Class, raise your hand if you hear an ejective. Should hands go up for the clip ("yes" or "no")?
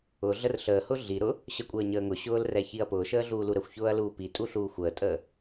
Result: yes